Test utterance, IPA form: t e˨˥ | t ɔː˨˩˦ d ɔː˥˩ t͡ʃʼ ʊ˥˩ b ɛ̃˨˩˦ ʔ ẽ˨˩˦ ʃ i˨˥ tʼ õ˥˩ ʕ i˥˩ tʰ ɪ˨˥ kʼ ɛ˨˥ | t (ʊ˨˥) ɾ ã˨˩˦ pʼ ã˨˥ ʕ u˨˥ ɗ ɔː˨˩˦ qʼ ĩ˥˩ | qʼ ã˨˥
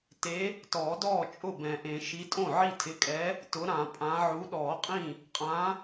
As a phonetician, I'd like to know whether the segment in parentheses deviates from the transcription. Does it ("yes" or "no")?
no